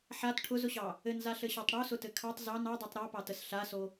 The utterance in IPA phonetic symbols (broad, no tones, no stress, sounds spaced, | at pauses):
ħ a t ʈʰ ʊ z ʊ ɕ ɑ | ɘ n z a ɬ ɘ ɕ ɑ tˤ ɽ o s ʊ t ɘ kʰ ɑ tˤ z ɑ n ɑ dˤ i tˤ ɾ ɑ p ɑ t ə s ɬ a s o